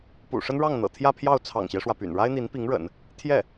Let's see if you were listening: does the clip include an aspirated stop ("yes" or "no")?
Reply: yes